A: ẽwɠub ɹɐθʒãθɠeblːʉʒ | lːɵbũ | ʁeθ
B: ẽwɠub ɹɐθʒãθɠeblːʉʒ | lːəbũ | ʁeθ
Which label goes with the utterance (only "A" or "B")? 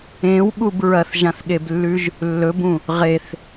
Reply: A